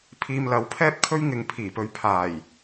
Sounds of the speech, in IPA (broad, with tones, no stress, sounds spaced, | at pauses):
pʰ iː˧ m l ɐ˨˥ w pʰ ɛː˥ p̚ kʰ ɵ˥ ɥ ŋ ɪ˨ ŋ pʰ iː˨˩ p ɵ˧ ɥ pʰ aː˨˩ j